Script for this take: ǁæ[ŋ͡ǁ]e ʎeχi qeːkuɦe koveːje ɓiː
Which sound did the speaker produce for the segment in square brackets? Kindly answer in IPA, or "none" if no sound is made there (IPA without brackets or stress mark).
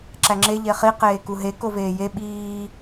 ŋ͡ǁ